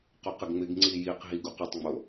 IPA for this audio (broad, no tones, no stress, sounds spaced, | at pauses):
q o q ɪ ɡ ŋ͡m ɪ ɡ ŋ͡ǀ i j i q ɦ i ɡ u q ʏ tˤ ŋ͡m o